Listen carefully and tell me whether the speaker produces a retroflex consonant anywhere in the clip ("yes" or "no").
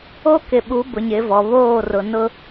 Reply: no